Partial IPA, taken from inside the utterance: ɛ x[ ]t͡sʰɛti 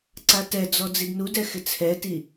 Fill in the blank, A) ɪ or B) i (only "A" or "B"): A